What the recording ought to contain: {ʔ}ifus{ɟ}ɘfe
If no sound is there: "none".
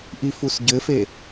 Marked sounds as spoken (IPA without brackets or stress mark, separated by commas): ʔ, ɟ